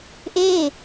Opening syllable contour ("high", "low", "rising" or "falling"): falling